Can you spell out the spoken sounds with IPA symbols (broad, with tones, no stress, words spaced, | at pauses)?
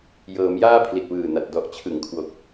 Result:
jɤː˩˦mjaː˥˩ pʰli˨˩t̚wɯː˨˩na˨˩t̚ dɔ˨˩ʔt͡ɕʰɯ˩˦ŋkʰwo˨˩k̚